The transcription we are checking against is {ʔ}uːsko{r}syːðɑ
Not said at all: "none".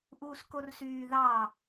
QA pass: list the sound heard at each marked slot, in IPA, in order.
ʔ, r

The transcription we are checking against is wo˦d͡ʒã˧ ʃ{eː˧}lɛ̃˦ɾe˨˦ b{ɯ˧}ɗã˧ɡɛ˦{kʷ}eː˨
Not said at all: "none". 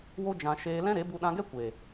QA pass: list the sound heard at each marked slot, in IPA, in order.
eː˧, u˧, kʷ

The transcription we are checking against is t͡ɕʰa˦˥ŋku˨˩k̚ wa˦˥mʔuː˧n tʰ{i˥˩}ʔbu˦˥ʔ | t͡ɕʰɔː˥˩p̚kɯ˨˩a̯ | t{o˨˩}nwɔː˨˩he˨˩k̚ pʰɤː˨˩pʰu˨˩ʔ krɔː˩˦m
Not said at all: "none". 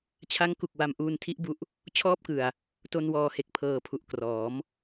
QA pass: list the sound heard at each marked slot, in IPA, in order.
i˦˥, o˧

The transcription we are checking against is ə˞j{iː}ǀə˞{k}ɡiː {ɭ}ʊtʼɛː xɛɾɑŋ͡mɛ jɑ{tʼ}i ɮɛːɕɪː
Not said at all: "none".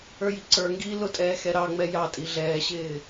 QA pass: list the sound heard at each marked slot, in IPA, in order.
i, ŋ, l, tʼ

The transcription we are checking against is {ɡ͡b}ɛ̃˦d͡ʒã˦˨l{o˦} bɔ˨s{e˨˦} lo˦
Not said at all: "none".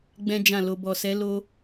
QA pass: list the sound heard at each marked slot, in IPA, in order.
ɡ͡b, o˧, ɛ˨˦

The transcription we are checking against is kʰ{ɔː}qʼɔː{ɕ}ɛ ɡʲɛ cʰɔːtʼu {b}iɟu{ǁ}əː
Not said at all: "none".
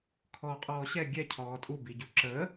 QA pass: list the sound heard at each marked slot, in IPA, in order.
ɔː, ɕ, b, ǁ

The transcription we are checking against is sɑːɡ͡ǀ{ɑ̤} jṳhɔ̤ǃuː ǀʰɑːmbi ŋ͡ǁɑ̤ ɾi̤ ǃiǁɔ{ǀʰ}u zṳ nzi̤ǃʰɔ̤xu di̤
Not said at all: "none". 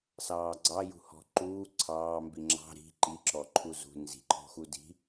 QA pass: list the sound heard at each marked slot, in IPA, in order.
ɑ, ǃʰ

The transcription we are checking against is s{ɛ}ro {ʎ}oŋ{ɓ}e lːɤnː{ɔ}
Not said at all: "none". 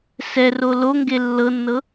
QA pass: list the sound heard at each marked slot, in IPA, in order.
ɛ, l, ɡ, ɤ

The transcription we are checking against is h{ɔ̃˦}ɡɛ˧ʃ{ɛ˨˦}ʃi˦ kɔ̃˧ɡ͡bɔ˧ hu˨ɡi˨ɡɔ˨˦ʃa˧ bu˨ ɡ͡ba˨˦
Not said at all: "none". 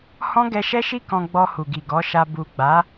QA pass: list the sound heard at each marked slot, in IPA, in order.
ɔ̃˦, ɛ˦

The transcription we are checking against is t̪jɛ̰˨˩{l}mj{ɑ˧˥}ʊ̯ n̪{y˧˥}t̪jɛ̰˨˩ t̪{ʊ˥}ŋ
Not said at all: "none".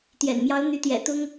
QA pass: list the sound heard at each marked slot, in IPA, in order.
n, ɑ˧˥, y˧˥, ʊ˥

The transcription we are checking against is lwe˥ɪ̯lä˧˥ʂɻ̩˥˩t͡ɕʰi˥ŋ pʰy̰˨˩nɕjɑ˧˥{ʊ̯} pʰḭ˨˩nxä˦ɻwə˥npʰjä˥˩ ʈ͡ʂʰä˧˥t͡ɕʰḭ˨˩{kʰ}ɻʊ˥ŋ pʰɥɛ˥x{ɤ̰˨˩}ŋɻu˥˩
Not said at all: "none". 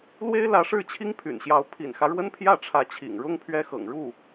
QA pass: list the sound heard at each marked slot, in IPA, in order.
ʊ̯, ŋ, ɤ̰˨˩

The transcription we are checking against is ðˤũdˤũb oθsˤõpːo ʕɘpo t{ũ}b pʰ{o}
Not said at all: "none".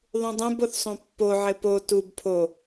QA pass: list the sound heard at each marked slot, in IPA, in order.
u, o

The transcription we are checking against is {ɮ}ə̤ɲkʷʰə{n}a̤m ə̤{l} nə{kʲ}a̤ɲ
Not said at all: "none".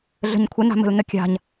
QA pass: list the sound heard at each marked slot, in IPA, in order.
ɮ, n, l, kʲ

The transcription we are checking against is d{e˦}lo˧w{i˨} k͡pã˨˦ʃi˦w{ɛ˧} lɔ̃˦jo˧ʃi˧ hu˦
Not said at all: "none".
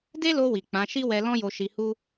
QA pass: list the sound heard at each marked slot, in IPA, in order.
e˦, i˨, ɛ˧

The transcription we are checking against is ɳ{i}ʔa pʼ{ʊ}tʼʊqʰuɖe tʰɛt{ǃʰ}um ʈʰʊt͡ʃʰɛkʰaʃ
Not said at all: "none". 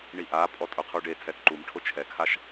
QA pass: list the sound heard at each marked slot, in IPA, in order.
i, ɔ, ǃ

